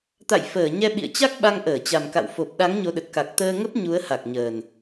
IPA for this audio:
t̪a̰˧˨jfəː˧˩ɲɛ˧ ɓḭ˧˨ə̯t͡ɕa˦˥k̚ ɓa˧ŋʔəː˧˩t͡ɕa˨˩mka̰˧˨w fo˨˩p̚ɗa˨˦ŋ ɲo˨˦ɗə˨˩t̚ ka˨˩k̚t̪əː˧ŋə˦˥p̚ ɲu˨˦ə̯ha˨˩k̚ɲəː˨˩n

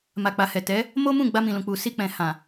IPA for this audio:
ma˨k͡pa˨hɛ˨ tɛ˨˦ | mo˦mũ˦˨ ɡ͡ba˧mĩ˨lũ˨k͡pu˨ si˧k͡pɛ̃˨ hã˨

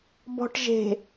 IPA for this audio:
bɔ̤ʈʒe̤

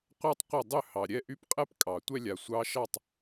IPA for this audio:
qʷɑ˥tˤqʷə˥˩dˤʏ˥˩ hɑ˩ ɾʲɛ˥˩ ʔy˥pqʼɛ˥p kʼɑ˩tʷɛ˥lʲa˩ sʷɑ˧˥ʃɑ˥˩tˤ

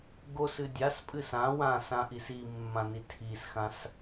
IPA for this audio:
ɡosɨ dʲaspʼɨs ã wãsãʔis imːãni tʰisxãs

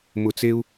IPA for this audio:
mʊ˧˩t͡se˦u̯

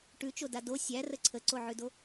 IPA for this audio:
ʈʉt͡ʃoda do sʲærə ǀʰəǀoʕʉdo

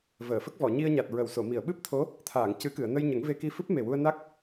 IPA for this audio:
vəː˨˩˨fə˦˥k̚ vɔ˨˩˨ɲi˧ə̯ɲa˨˩t̚ ɹə˨˩˨wso˨˩˨mi˨˩˨ə̯ ɓɨ˦˥p̚t̪ʰo˧˥ | t̪ʰaː˨˩˨ŋcɨ˨˩˦ kɨ˨˩˨ə̯nə˧jɲə˨˩˦ŋve˧ ki˧fɨ˦˥p̚me˨˩wu˧ə̯ na˦˥k̚

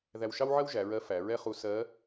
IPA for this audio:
ðæ˧wʃɑ˥wʕɜ˥wʒæ˩˧ ɹɜ˧˥ fæ˩˧ɹɛ˥χu˧˥ sɜ˧˥

